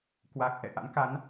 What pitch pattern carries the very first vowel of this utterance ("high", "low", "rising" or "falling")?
low